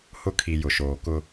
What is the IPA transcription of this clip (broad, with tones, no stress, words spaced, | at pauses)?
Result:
hʊ˦kʰi˨ jʊ˨ʃoː˨kʊ˦